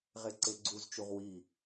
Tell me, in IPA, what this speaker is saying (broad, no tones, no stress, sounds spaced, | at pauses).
ʁ e ǀ e ɡ͡ǀ u z t͡ʃ u ʁ w i